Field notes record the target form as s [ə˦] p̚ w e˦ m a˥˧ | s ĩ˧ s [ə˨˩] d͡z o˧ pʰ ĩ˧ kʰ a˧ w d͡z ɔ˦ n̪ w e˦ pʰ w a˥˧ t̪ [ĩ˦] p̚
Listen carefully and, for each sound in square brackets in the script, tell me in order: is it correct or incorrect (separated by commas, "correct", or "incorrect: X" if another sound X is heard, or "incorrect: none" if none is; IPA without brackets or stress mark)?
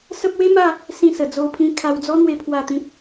correct, correct, correct